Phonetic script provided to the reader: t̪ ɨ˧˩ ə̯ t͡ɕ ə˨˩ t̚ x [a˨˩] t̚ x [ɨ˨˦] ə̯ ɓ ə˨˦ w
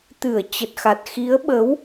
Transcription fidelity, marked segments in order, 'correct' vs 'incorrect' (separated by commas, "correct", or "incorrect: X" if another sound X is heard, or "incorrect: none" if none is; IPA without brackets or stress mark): correct, incorrect: i˨˦